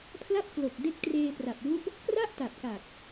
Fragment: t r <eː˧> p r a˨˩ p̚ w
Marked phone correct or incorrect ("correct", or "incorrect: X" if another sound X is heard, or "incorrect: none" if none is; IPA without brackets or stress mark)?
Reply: correct